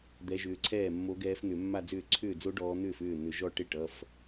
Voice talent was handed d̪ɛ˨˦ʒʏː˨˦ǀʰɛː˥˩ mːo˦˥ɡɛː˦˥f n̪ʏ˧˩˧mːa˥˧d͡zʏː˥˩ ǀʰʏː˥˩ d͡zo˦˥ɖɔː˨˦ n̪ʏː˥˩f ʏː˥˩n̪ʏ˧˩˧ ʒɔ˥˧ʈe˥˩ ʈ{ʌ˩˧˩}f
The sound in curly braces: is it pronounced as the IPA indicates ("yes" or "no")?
yes